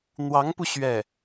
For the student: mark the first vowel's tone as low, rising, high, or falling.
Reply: rising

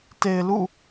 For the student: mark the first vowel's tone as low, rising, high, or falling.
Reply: low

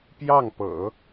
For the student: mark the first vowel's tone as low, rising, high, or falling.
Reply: falling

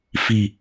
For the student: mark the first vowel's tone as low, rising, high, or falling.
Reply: low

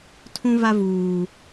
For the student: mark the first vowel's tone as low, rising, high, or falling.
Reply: high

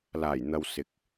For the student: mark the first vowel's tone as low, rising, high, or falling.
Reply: low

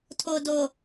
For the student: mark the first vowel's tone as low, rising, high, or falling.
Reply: low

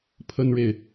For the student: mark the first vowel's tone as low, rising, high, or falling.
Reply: high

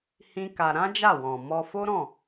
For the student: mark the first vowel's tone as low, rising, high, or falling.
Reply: high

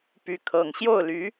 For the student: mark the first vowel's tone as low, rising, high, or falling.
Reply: rising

